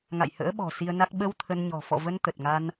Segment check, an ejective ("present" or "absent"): absent